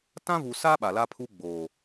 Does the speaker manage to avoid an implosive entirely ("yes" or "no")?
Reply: no